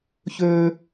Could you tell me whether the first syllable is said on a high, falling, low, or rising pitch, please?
high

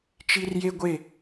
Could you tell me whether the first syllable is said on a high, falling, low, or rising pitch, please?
high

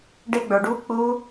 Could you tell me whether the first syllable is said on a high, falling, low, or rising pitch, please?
high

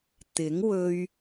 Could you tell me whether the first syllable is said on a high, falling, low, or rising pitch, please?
rising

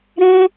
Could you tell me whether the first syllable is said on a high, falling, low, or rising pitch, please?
high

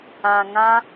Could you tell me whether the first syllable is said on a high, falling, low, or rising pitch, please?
low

